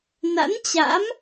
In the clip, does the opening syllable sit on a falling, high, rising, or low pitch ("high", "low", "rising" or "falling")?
rising